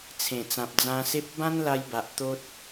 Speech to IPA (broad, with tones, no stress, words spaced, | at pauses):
t͡sʰẽ˨˩t͡sã˨p̚d͡zã˧se˦p̚ bã˦nla˧jba˨ʔ t̪o˦t̚